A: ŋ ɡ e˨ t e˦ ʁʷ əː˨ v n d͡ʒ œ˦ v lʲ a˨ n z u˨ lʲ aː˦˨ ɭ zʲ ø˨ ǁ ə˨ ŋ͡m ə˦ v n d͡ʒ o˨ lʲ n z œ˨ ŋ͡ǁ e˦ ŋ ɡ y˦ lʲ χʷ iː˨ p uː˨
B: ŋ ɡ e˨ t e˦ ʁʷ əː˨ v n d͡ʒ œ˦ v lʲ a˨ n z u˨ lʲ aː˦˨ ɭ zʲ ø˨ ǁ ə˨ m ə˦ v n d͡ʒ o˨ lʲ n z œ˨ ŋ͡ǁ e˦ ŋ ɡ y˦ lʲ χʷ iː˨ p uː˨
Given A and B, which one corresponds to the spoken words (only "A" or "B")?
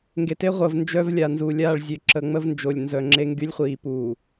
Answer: A